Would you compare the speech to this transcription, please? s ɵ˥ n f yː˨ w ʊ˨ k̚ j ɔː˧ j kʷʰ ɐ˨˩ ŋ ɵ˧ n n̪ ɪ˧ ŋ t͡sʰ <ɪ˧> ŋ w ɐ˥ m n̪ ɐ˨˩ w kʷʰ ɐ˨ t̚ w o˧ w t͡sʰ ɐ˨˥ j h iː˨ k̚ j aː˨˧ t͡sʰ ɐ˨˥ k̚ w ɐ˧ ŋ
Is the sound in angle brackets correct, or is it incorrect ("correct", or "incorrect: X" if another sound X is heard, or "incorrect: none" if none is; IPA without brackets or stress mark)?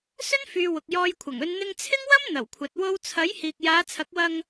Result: incorrect: ɪ˥